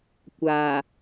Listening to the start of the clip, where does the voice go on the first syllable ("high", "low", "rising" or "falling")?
low